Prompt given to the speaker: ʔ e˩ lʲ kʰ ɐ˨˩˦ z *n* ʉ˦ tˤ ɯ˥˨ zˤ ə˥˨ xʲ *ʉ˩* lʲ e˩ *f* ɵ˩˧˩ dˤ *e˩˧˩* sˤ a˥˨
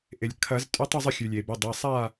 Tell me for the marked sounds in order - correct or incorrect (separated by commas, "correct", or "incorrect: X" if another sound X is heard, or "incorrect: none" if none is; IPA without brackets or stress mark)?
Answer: incorrect: tʼ, correct, incorrect: b, correct